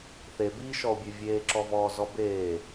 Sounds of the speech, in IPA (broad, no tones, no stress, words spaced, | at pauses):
θebiːʃɔo̯bʲʉ vʲeːǁɔvɔːzɔ beː